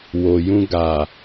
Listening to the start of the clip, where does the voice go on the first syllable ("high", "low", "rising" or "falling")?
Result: low